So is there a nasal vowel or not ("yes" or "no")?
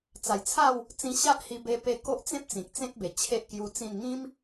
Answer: yes